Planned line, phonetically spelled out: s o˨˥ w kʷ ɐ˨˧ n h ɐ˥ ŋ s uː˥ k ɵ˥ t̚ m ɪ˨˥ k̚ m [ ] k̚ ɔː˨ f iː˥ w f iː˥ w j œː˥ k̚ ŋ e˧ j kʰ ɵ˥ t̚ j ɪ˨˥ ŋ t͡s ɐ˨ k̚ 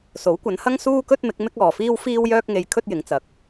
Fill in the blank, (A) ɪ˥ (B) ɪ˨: A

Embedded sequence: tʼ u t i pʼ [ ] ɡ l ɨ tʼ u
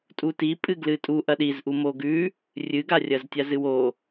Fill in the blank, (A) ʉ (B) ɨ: B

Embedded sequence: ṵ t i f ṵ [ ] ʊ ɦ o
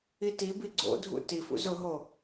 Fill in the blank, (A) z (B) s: A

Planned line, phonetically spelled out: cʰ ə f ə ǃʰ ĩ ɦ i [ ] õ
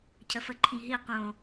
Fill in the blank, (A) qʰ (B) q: B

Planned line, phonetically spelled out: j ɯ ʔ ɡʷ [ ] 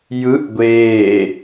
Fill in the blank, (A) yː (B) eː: B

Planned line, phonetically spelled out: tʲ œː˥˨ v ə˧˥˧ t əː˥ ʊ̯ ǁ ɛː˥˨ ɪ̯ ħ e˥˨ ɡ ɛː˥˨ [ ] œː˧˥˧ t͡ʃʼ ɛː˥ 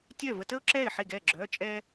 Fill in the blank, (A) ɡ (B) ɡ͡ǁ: B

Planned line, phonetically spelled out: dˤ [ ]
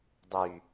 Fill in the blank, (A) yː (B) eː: A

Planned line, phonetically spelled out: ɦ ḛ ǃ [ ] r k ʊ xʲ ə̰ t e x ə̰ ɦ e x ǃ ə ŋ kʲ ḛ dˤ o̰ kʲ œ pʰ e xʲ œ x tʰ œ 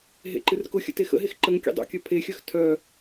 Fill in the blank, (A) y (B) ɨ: B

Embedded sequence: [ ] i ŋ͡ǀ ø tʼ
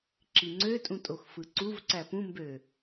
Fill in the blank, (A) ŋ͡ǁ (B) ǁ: B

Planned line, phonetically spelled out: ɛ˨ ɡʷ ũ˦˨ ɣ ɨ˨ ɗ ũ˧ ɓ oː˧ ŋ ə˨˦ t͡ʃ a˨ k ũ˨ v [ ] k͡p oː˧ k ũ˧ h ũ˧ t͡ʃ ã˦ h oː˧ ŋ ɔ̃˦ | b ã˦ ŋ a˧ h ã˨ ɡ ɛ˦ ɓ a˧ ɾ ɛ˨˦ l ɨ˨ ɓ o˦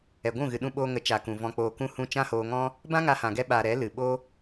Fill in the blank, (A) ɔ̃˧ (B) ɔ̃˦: A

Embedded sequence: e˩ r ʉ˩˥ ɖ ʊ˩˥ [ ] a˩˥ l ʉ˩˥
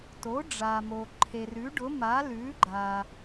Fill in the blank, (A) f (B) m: B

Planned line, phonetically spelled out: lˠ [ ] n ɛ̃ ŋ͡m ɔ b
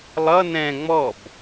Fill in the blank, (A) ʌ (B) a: A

